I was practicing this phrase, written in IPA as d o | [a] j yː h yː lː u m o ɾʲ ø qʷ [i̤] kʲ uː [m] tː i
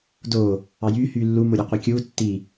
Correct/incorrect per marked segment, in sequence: incorrect: ɑ, incorrect: i, incorrect: none

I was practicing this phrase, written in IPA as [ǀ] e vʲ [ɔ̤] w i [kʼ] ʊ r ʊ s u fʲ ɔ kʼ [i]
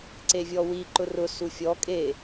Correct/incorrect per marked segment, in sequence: correct, incorrect: ɔ, incorrect: ǃ, incorrect: e

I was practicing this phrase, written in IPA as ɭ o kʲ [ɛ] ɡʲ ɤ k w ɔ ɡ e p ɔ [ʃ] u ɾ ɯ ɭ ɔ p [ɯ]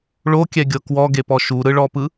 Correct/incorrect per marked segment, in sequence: correct, correct, correct

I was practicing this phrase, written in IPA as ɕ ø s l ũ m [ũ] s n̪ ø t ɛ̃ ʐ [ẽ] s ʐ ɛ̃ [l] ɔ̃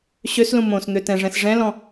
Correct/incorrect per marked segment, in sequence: incorrect: õ, incorrect: ɛ̃, correct

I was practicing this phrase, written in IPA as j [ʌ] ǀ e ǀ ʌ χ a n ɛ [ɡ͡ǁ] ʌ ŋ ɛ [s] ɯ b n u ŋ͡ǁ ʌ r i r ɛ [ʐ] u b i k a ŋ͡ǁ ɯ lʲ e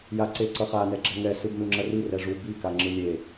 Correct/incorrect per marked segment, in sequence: incorrect: a, correct, correct, correct

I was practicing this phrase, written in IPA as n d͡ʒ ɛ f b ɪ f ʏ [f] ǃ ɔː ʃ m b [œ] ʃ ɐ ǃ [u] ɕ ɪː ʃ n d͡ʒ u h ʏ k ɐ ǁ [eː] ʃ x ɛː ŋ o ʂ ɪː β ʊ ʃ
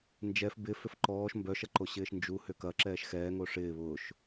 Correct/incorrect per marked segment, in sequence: correct, correct, incorrect: o, incorrect: ɛː

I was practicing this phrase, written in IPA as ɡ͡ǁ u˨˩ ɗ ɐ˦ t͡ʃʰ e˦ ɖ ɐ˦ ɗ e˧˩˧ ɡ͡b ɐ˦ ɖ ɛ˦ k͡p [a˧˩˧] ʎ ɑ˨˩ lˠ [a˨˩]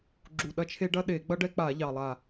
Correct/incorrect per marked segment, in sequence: correct, correct

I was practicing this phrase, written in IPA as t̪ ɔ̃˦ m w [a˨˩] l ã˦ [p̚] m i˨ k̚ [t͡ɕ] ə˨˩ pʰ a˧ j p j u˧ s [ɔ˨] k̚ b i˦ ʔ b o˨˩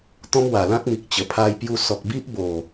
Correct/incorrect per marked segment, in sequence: correct, incorrect: k̚, correct, correct

